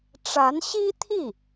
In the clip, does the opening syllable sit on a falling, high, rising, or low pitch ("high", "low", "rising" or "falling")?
rising